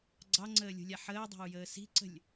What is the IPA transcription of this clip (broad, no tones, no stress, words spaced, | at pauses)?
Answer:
ɡ͡ǀɑŋ͡ǀəːlʲṳlʲa ħəːdˤa̤u̯jəː si̤ǀə̤lʲ